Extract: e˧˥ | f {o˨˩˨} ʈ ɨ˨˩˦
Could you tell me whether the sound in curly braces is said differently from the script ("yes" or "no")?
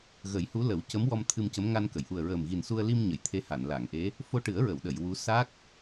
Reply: yes